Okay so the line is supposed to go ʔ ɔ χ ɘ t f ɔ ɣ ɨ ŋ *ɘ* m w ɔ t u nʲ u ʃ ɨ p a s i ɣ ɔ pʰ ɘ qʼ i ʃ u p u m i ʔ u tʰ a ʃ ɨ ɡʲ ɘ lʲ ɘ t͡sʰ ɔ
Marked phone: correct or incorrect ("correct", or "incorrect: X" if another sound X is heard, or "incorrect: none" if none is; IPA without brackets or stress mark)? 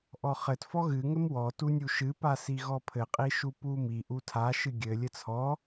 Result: correct